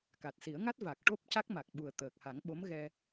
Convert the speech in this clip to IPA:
ka˨˩t̚si˨˩˦ə̯ŋa˦˥t̚ va˨˩k̚ ʈo˦˥p̚ ca˦˥k̚ma˨˩k̚ɓu˨˩ə̯ t̪əː˨˩k̚ha˨˩˦ŋɓo˧˥m ɣɛ˧

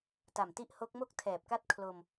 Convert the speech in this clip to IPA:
ta˨˩mti˥˩ʔ ho˦˥k̚mo˥˩k̚ tʰɛː˨˩p̚ka˥˩t̚ kʰlo˧m

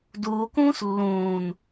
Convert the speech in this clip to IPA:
duːkũːs lːũːn

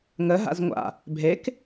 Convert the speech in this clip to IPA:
ŋəɦa̰z ŋʷa̰ | bʱek

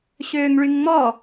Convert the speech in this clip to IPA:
ɕøːŋɭyŋŋ͡mɔ

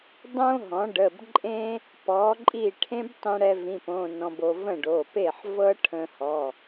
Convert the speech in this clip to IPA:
dˤõ˥ɦɔ̃˩˥ɖə˩˧˩bǃʼẽ˥ | pɔ˩˥ǃʼi˥˩ ʈʰẽ˥btˤĩ˧ɽɛ˧ vĩ˧˥˧põ˧˥˧nɔ̃˧bo˧ və̃˥˩ɖo˩˧˩pe˥˩ħ vɤ˥ʈʰə̃˧hɔ˩˧˩

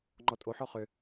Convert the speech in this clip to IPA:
ŋ͡ǃɔtʼo ħɔχʏ

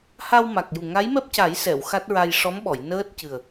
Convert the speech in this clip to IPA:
ha˧wma˨˩k̚ju˨˩ ŋa˧˥jmɛ˦˥p̚ca˨˩˦jsɛ˨˩˨w xa˦˥t̚ɹa˧j ʂɔ˧˥mɓɔ˨˩˨j nəː˦˥t̚cɨ˨˩ə̯

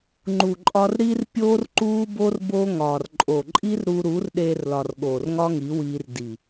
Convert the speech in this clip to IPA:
ŋ͡ǃu˨ǃʼɒ˧r ɾi˧r pʲoː˦rǃuː˦bo˦r bo˦ŋɒː˨r ǃʼo˨ǃʼi˦r ɾu˧ ɾu˨˦rɗeː˧rlɒ˨r ɠoː˨rŋɒ˦ŋi˨˦wiː˧r di˨

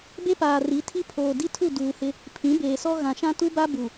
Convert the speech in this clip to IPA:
be˦paː˨ri˨˦tʰi˦ pʰoː˨di˦tʰu˦˨ duː˨hɪ˦ | pʰĩ˨˦beː˨sɔ˦ ɣã˨ʃã˦tu˦ba˦ bu˨

